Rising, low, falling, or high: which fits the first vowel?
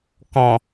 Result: low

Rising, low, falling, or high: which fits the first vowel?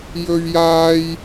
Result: high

